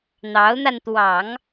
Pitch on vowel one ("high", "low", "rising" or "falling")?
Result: rising